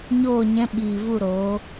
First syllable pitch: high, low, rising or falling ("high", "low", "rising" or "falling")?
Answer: falling